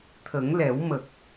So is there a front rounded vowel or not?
no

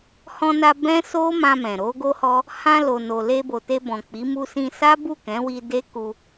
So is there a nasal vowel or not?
yes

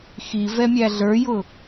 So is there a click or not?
no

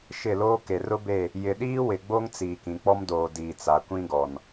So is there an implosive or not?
yes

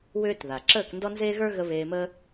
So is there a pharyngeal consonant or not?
no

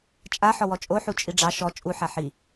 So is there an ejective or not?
yes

